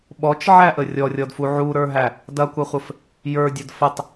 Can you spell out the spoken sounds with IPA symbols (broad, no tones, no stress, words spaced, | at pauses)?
ɓɔt͡ʃʕæʔə rʲɔrʲɔdfu ʕuɾə˞ɦæ | dɐkʷɐχʷəf | jə˞dʲɐd fətˤ